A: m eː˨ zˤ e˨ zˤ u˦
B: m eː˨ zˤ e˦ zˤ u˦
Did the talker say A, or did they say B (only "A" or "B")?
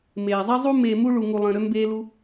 B